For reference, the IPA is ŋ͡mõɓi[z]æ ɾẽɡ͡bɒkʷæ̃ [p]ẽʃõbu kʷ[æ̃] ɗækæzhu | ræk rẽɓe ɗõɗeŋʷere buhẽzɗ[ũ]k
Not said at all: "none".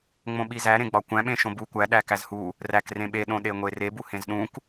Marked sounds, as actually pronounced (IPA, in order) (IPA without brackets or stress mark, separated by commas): z, ɓ, æ, ũ